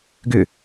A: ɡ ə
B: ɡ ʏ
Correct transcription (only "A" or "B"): B